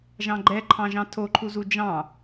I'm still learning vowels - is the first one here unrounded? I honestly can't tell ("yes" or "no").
yes